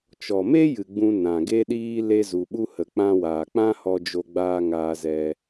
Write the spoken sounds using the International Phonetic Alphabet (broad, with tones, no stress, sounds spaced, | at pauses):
t͡ʃ ɔ˨ m e˦ j ɨ˨ ɡ͡b ũ˧ n ã˨ ɡ e˦ ɗ iː˦ l e˧ z u˨ ɓ u˧ h ə˨ k͡p ã˧ w aː˨ k͡p ã˦ h ɔ˧ d͡ʒ o˧ ɡ͡b aː˧ ŋ aː˧ z ɛ˧